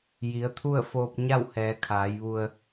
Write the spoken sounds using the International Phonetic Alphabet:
j i˩˧ ə̯ t̪ʰ u˥˨ ə̯ f oː˧ p̚ ɲ a˥˨ w h ɛː˩˧ kʰ aː˩˧ j ʋ u˧ ə̯

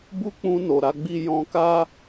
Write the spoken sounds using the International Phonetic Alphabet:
b u˦ k͡p ũ˧ n o˨ ɾ a˨˦ ɡ͡b i˦ j ɔ̃˧ k a˦

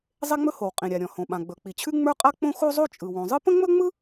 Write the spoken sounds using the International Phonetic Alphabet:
zˤ e˥ ŋ͡m ɵ˥ h o˩ w qʼ ĩ˩ ɾʲ a˩ ɾʲ ɔ̃˩ h õ˩ ɓ ã˩ ɡ͡b ɵ˩ k͡p i˩ t͡ɕʰ ʉ˥ ŋ͡m ə˞˥ qʼ a˥ k͡p õ˥ x o˥ zˤ o˥ t͡ʃʼ ɯ˩ w õ˩ zˤ ɯ˥ p ə̃˥ ŋ͡m ɵ˥ ŋ͡m ɯ˥

